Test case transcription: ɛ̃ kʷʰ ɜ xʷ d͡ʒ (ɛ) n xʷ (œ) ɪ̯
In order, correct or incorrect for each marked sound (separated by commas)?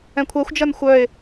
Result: incorrect, correct